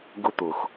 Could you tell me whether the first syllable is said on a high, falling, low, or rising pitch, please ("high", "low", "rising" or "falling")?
high